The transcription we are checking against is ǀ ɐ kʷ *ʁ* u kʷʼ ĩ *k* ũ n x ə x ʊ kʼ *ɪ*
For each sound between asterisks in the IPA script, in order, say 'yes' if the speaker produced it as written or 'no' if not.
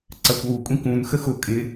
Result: no, yes, yes

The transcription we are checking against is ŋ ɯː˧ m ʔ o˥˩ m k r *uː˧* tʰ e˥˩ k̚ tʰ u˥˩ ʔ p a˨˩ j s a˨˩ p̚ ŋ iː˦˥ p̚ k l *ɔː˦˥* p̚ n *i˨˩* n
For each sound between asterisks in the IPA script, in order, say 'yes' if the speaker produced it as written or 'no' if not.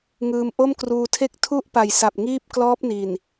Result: yes, yes, yes

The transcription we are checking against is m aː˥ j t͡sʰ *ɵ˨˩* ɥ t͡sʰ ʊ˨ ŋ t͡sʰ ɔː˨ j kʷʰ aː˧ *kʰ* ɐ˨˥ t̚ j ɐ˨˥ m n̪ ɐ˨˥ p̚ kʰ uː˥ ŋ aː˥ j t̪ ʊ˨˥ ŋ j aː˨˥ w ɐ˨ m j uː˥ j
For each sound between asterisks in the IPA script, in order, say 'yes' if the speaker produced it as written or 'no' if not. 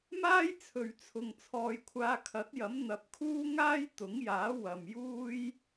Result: no, yes

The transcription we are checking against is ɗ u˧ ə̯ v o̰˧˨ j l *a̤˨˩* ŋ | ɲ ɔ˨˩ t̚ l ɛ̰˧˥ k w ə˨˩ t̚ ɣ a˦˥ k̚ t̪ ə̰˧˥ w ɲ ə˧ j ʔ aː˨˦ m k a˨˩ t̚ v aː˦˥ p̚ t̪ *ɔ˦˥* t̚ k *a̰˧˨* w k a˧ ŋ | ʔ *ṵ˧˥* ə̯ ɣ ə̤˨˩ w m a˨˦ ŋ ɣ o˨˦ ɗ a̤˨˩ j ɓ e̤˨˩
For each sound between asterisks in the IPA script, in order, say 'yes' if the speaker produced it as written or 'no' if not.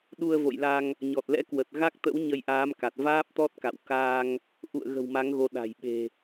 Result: no, yes, yes, no

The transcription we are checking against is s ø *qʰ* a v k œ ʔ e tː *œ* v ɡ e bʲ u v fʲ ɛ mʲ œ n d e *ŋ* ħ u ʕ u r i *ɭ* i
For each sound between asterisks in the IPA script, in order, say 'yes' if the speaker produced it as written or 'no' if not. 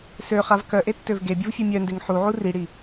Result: no, no, yes, no

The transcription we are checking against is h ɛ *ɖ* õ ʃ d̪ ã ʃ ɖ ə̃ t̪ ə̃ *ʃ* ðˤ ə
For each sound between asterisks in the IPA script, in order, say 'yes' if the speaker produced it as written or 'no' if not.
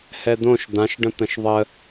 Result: no, yes

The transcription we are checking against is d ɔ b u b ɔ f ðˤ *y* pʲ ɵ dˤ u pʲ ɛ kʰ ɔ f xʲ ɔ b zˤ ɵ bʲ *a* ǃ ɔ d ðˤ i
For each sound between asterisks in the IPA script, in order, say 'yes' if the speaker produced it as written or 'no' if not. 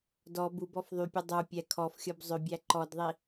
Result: yes, no

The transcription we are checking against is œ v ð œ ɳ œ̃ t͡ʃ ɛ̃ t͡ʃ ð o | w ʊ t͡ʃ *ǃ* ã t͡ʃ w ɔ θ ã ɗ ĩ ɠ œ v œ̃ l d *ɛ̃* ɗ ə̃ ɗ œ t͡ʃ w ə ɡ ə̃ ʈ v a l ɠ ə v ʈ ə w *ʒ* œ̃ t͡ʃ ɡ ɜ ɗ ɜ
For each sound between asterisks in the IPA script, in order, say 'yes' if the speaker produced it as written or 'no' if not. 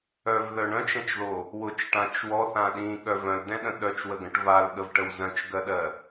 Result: no, yes, no

